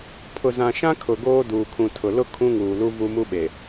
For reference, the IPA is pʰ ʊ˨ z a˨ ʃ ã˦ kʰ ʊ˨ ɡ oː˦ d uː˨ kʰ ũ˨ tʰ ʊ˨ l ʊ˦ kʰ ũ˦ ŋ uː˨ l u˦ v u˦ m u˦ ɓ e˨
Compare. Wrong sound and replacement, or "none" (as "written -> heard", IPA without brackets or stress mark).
a˨ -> ã˨